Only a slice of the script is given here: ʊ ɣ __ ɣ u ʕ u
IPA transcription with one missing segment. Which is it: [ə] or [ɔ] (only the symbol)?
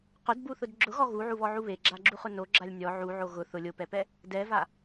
ɔ